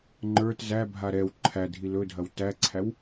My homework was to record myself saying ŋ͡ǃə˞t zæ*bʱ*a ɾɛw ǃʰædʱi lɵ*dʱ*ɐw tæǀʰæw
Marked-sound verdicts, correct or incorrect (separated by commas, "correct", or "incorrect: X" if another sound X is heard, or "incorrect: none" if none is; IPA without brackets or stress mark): correct, correct